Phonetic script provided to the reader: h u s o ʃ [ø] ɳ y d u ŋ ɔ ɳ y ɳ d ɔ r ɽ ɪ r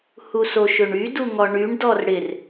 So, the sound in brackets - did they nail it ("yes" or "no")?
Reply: yes